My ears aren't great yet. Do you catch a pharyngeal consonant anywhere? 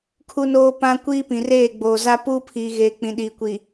no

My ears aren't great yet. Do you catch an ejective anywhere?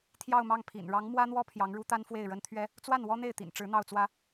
no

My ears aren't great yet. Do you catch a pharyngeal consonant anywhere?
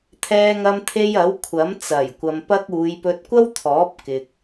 no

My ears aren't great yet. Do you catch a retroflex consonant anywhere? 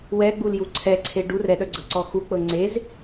yes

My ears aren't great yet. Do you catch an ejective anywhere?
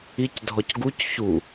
no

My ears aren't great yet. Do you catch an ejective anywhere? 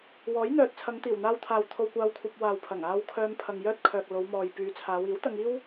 no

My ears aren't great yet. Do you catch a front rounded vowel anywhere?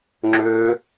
yes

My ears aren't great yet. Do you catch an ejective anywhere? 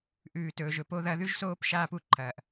no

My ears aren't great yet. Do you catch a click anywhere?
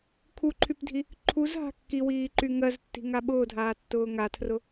yes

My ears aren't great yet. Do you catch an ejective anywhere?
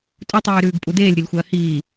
yes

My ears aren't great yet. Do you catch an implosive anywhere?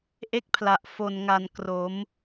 no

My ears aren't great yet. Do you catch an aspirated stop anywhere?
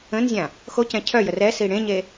yes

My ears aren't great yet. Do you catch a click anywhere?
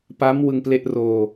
no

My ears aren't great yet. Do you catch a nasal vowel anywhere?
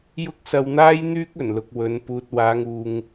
no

